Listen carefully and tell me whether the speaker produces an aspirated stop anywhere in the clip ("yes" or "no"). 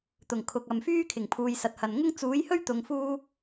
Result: yes